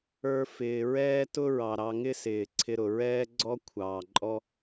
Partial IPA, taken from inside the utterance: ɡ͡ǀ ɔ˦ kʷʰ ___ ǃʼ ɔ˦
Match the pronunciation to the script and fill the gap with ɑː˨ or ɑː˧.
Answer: ɑː˨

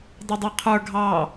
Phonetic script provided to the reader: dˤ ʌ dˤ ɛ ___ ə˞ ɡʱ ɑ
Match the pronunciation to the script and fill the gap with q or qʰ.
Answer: qʰ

